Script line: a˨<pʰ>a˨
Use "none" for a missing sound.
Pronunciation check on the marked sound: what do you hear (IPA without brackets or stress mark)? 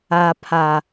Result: pʰ